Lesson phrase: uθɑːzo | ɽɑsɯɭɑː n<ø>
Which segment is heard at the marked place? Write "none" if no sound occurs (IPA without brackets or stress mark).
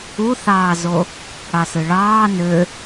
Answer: ø